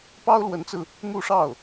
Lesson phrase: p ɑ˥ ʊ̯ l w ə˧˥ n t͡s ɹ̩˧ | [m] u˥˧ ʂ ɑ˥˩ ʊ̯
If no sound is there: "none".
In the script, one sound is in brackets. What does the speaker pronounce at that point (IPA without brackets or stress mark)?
m